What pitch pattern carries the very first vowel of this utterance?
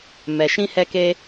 low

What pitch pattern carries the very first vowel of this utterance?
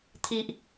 high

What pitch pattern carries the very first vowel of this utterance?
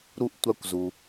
high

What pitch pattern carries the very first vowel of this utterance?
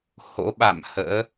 rising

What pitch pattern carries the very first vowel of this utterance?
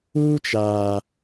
high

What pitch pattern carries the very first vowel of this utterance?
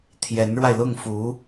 rising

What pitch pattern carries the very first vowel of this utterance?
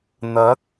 rising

